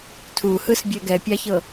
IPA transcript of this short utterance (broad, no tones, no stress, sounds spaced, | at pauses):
tʰ u h ɯ s bʲ ɛ ɡ ɛ pʲ a ç ɤ